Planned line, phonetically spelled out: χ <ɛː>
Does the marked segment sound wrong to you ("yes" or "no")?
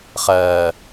yes